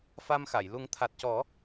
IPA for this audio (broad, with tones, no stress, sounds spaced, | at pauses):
f a˧ m x a˨˩˨ j l u˨˩˦ ŋ t̪ʰ a˨˩ t̚ c ɔ˨˩˦